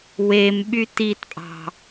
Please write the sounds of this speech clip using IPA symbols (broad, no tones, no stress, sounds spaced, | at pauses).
w e m ɓ y t i t pʼ ɑ̤